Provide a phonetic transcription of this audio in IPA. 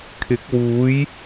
kʰ ɪ˨˥ k̚ w uː˨˥ j

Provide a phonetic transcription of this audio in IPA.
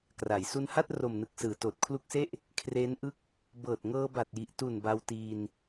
k r a˩˦ j s u˧ n h a˥˩ t̚ r o˨˩ m n ɯ˨˩ k̚ s ɯː˨˩ t oː˨˩ t̚ kʰ l u˦˥ k̚ s e˥˩ ʔ | kʰ r eː˦˥ n ʔ ɯ˥˩ k̚ | b ɤː˨˩ t̚ ŋ ɤː˧ b a˨˩ t̚ j i˨˩ ʔ t u˨˩ n b a˧ w t iː˧ n

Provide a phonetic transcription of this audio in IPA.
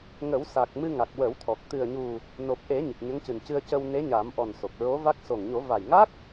ŋ ə˨˩˦ w s a˨˩ k̚ m ɨ˧ ŋ a˨˩ k̚ w ə˨˩˦ w t̪ʰ ɔ˨˩ k̚ t̪ ɨ˨˩ ə̯ ɲ u˨˩ | n o˨˩ p̚ ʔ e˨˩˦ ɲ i˨˩ k̚ ɲ ə˧˥ ŋ c ɨ˨˩ n c ɨ˧ ə̯ c ə˧ w n e˧˥ ɲ a˨˩˦ m ʔ ɔ˨˩ n s o˨˩ k̚ ɹ o˧˥ v a˦˥ k̚ s o˨˩ ŋ ɲ o˨˩˦ v a˨˩ j ŋ a˦˥ k̚

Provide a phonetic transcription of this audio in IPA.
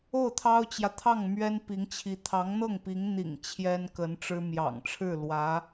o˥˩ ʊ̯ t̪ʰ ɑ˥ ʊ̯ t͡ɕ j ä˨ t̪ʰ ɑ˥˩ ŋ m ɥ ɛ˥ n p i˧˥ ŋ t͡ɕʰ i˧˥ t̪ʰ ɑ˧˥ ŋ n̪ ɤ˥˩ ŋ p i˧˥ ŋ n̪ ḭ˨˩ ŋ t͡ɕʰ j ɛ˥ n k ə˧˥ n ʈ͡ʂ ɻ̩˥ m j ɑ̰˨˩ ŋ ʈ͡ʂʰ ɻ̩˥˩ l w ä˧˥

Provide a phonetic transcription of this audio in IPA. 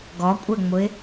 ɡ ɔ kʷʼ ɛ ŋ͡m ʊ ɪ̯

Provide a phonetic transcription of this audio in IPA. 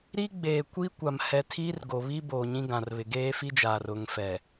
ɾ i˦ ɡ͡b eː˨ kʷ i˦ kʷ a˨ m h ɛ˨ tʰ iː˦ r ɡ o˨ β i˦ b oː˨ ɲ ĩ˦ ɡ ã˨ r β ɪ˨ ɡ eː˦ f i˦ d͡ʒ aː˨ r ʊ˨ ŋ f ɛ˨

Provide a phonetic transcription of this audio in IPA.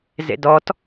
z ḛ d ɔ t

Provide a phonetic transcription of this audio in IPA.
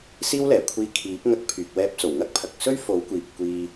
s iː˥ w l ɛː˨˩ kʷʰ iː˧ kʰ iː˨˥ p̚ ŋ ɐ˧ k̚ pʰ yː˨ k̚ w ɛː˧ p̚ t͡s o˨˩ w ŋ ɐ˥ k̚ pʰ ɐ˨ k̚ s ɵ˥ ɥ f o˨˥ w kʷ iː˨ p̚ kʷ iː˧

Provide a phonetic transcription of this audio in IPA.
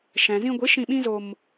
ʃ ɛ̃˨ z ĩ˧ ɡʷ i˨˦ ʃ ĩ˧ ɓ ĩ˦ z o˧ m

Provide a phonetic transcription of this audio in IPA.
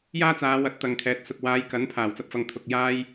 j aː˥ t͡s aː˨˧ w ɐ˨˥ t̚ t̪ ɐ˨ ŋ kʰ ɛː˨˥ t̚ s ʊ˨ k̚ w aː˨˧ j k ɐ˨˥ n pʰ aː˨˩ w t͡s ɐ˧ p̚ f ɐ˨ ŋ t̪ʰ ʊ˨ k̚ j aː˥ j

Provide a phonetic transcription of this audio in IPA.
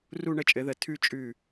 r u˥˧ ɳ ə˥˧ t͡ʃʼ ɘ˩˥ ð ə˨˩˦ tʰ ʉ˥˧ t͡ʃʼ ʉ˥˩

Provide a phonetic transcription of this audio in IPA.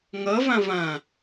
ŋ ɤ v ɐ̃ v ɐ̃

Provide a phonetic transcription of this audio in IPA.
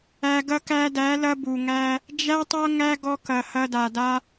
æ˧ ɡ ɐ˧ k æ˧ d æ˨˦ l ɐ˧ b u˨ ŋ æ˧ | d͡ʒ æ˦ tˤ ɐ˦ ŋ æ˦ ɡ ɔ˧ k ɐ˨ h ɐ˧ d a˨ d a˧

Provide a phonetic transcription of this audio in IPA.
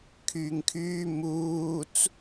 kʰ yː ŋ kʰ yː m uː t͡s

